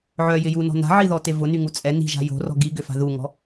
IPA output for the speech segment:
ʕœjɪ junɔ̤ na̤ʕiðɔte vʊnyŋu t͡sʼɛ ni̤ʒa̤ jo̤rɔ̤ ɡiɡʏfa̤ ðuŋɔ̤

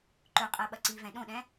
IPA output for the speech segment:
ǃɵqʼɜ ɓɐǀivɛ̃ ɗõɗɛ̃

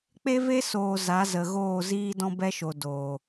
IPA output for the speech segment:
k͡pe˦ve˦soː˨ za˨˦zə˨ɣoː˦˨ ziː˦dɔ̃˦bɛ˦ʃo˨ do˨

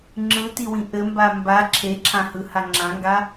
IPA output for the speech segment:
ŋ͡ǁɯtiwĩ ʔɘmba mba ǁʰeǁʰãhɯha ŋ͡ǁãŋɡa

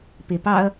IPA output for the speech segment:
pepɑɐ̯

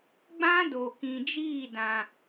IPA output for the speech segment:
ɡ͡bã˦do˨kĩ˨ d͡ʒiː˦˨dã˨

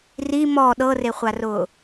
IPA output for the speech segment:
ri mɔ ɗɤreχʷarʊː

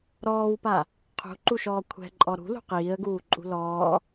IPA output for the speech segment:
ɾɔːwpa | qʰṳǃuʃɔː kʷʰɛ̤ǃʼɔ ɾṳlṳ qiːə̯ɡuːǃʼṳ lɔː

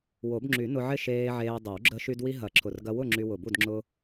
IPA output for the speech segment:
wo˨˩˦bŋ͡ǁy˨˩˦nʊ˧ʕɪ˥˨ ʃeː˧ ʕeː˧dˤɪ˨˩˦w ɡ͡ǁə˧ʃy˧dwi˧ ɦɐ˨˩˦ǁʰʊ˨˩rɡɐ˧ wʊ˥˨ ŋ͡ǁy˧wʊ˨˩bu˥˨d ŋ͡ǁʊ˧

